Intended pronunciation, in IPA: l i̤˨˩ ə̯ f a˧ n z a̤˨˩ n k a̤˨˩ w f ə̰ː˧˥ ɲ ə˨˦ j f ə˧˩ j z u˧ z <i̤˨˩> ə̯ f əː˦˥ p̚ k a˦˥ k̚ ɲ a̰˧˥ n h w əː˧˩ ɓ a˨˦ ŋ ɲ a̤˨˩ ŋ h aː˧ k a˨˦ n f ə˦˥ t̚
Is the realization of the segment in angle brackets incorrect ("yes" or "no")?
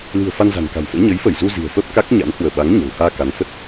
no